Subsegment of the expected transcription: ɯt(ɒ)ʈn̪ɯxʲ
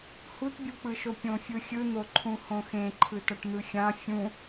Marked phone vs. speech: incorrect: ʌ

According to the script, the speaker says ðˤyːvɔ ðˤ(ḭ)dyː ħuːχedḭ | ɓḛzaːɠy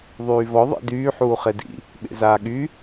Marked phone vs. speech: correct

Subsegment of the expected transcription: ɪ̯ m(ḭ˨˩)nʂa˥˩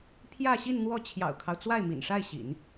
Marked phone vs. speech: correct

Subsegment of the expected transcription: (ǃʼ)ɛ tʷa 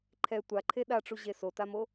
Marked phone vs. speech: incorrect: ǃʰ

